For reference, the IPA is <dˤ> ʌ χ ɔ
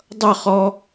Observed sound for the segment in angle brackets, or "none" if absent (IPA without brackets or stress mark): dˤ